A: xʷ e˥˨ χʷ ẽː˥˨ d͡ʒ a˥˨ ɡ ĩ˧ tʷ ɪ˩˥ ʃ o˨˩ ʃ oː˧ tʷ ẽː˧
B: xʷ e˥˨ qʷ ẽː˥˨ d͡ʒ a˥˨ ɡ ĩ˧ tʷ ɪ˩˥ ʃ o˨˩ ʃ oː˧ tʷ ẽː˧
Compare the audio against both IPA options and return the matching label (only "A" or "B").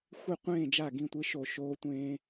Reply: B